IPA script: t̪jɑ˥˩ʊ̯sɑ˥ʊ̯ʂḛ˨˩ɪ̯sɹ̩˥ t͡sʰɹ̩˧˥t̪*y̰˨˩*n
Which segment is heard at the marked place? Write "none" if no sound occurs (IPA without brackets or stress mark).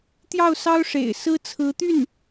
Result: y˥˩